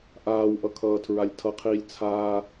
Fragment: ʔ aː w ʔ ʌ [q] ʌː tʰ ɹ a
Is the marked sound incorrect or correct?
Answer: incorrect